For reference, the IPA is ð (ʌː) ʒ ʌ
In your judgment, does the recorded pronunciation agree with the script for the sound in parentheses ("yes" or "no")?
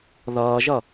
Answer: yes